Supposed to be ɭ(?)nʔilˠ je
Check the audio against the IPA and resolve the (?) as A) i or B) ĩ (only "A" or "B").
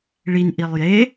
A